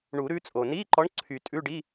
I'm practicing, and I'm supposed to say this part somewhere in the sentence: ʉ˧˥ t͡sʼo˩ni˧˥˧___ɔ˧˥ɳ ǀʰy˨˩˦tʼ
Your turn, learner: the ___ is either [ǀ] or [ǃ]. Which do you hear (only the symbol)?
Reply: ǃ